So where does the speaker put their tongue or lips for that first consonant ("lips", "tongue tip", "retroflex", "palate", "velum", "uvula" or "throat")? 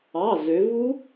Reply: tongue tip